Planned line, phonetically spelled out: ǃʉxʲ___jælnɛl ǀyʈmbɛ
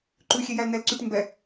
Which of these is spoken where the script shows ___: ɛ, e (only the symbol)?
e